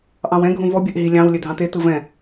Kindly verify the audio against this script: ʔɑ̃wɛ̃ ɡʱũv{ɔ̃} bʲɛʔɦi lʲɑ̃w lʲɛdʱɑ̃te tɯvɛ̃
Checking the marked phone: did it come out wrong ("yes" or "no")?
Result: yes